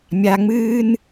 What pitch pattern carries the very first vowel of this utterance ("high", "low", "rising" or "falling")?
low